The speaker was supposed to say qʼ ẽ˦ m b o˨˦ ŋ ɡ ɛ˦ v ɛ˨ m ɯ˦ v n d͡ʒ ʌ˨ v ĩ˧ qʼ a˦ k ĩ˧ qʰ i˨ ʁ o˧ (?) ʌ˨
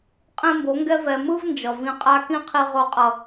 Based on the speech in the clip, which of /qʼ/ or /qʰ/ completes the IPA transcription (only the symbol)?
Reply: qʼ